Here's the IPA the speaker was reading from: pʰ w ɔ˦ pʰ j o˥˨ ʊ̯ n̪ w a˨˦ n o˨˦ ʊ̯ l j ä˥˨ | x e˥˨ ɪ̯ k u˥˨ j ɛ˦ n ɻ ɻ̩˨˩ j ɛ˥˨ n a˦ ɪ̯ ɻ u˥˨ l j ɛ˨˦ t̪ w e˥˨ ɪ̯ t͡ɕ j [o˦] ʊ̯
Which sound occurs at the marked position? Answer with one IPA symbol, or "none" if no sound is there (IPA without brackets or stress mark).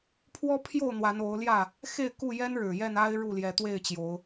o˨˦